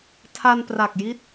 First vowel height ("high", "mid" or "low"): low